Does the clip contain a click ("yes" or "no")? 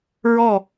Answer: no